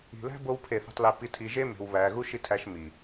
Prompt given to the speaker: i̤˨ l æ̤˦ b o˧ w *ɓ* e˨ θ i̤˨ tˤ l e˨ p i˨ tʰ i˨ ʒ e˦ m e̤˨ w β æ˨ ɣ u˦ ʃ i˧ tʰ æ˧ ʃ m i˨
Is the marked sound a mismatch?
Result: yes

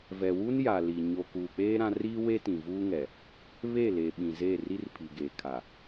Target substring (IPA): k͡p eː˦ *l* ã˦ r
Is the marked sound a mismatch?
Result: yes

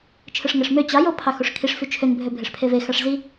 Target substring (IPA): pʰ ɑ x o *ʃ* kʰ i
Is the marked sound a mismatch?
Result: yes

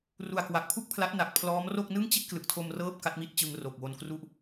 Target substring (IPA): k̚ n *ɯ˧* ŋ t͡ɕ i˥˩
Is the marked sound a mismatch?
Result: yes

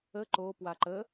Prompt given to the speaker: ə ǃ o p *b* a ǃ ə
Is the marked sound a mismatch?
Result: yes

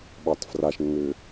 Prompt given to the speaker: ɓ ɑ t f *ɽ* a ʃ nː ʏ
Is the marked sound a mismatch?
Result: yes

